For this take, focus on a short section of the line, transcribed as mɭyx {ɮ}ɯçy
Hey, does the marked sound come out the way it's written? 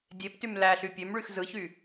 no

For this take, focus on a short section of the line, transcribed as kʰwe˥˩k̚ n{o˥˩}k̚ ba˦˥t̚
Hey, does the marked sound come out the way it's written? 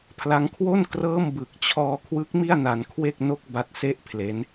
yes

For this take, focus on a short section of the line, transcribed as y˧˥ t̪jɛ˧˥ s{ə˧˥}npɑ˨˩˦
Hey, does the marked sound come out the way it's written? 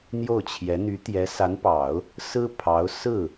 no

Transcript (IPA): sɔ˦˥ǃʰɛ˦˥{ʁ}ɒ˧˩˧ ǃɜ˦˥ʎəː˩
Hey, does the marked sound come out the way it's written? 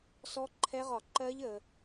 yes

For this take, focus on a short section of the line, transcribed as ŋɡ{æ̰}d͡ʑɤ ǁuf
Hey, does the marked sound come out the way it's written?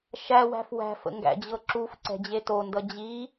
yes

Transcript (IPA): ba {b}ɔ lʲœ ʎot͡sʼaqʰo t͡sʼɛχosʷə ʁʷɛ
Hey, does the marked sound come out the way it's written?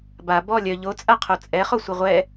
yes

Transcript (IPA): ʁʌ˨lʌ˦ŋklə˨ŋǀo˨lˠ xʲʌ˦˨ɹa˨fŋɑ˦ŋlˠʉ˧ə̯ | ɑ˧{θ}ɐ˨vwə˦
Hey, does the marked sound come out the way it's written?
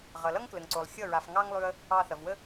yes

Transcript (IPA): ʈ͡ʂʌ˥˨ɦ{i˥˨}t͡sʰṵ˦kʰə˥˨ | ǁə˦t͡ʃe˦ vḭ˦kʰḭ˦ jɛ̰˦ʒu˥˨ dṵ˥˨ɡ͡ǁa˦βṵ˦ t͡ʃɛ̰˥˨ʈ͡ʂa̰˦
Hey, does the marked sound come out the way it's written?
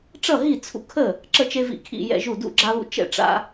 yes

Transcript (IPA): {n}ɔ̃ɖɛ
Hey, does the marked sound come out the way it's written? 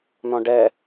yes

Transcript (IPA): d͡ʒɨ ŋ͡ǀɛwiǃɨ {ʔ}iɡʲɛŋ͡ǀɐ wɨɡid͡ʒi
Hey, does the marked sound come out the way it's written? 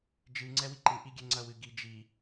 yes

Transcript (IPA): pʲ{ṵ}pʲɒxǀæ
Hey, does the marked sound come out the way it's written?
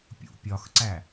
yes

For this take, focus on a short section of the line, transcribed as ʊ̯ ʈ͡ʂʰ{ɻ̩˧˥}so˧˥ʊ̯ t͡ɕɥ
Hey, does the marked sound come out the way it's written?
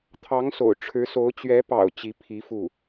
yes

